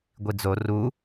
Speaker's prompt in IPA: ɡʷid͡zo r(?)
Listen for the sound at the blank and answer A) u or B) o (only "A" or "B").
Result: A